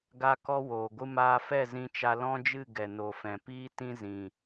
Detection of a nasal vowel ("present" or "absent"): present